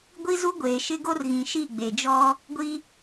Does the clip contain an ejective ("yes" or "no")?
no